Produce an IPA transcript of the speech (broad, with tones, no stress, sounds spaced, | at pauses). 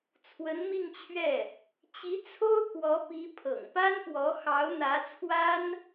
t͡sʰ w ə˧˥ n m i˥˧ ŋ t͡ɕʰ ɥ ɛ˥˩ | t͡ɕ i˧˥ t͡sʰ o˥ ʊ̯ k w ɔ˧˥ p i˧˥ pʰ ɤ̰˨˩ ŋ p a˥ n p w ɔ˧˥ x ɑ˧˥ ʊ̯ n̪ ä˧˥ t͡sʰ w a˥ n